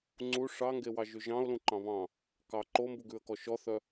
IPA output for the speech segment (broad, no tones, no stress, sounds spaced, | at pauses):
ŋ͡ǀ u ʂ ɑ ŋ ɡ e w ɑ ʒ ʉ ʒ ɑ̃ ʊ̯ l ũ ǃ ɑ̃ β ɑ̃ | k ɑ ǃ o m b u ɡ ʉ ə̯ k ɔ ʃ ɔ θ œ